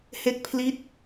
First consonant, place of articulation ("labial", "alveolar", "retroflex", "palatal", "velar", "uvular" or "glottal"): glottal